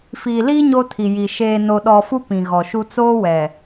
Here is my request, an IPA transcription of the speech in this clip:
fiː˨liː˦ ɲo˦tʰi˨ji˨ ʃeː˨no˨ɗɔ˨fu˦ pĩ˨ɣɔ˨ʃu˦ t͡soː˦wɛ˨

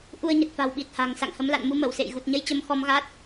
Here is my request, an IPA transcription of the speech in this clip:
ʔu˧ə̯ɲə˨˩t̚fa̤˨˩w ɓi˨˩t̚ha̤˨˩ŋ sa̰˧˨ŋhə˨˦mla̰˧˨n mu˧mə˧˩wsḛ˧˨j ɣu˨˩t̚ɲə˧jt͡ɕə˨˦m xɔ˨˦m ɣa˦˥t̚

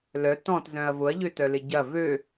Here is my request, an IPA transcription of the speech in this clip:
lœ tɔ̃tzœ̃ɐ̯ vʊɐ̯ʎøtœlɪ ɟɐ vø

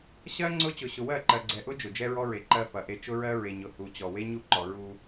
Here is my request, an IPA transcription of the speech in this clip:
ɕɜ˦ ŋ͡ǀʊ˦ t͡ɕʊ˨ɕʊ˨wɜ˦˨ǃɜ˨ ɡ͡ǀɛ˨ʔʊ˦ d͡ʒʊ˨d͡ʒɛ˦ɹɔ˦ɹe˨ ǃɜ˦fɐ˨ʔe˦ t͡ʃʊ˦ɹɜ˦ɹe˨ɲʊ˨ hu˨t͡ɕɔ˨ we˦ɲu˦˨ǃɔ˨ ɹu˦

